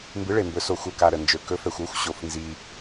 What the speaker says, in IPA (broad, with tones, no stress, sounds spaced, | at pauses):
m b ɨ˩˥ ɭ e˩ m b ɵ˩˧ s o˩ xʷ ɤ˩ k a˩ ɾ ə˩ n d͡ʒ ɵ˩˧ k ɵ˩˥ f ɛ˩ xʷ o˩˥ xʷ ɕ o˩ f n z i˩